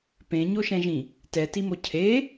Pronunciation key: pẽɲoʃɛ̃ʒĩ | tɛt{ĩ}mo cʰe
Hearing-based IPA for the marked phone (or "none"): i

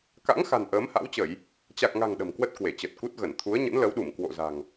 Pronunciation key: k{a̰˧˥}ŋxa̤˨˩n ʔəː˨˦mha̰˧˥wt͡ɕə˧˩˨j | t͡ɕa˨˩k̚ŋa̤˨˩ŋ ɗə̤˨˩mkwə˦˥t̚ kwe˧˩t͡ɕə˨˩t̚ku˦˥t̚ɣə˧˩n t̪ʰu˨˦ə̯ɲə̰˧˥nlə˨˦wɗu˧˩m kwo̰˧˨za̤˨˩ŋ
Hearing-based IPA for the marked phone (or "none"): a̰˧˥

